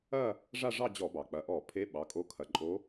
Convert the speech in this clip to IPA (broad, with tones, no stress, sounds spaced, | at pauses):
ɐ˥˧ | ʐ a˥˧ ʐ ɑ˥˧ d͡ʑ ɔ˧˩˧ b ɑ˩ k͡p ɐ˩˧˩ ʔ ɔ˧˩˧ pʰ e˧˥ ɓ ɑ˩˧˩ kʼ o˧˥ kʰ ɐ˩˧˩ ǃʼ o˧˥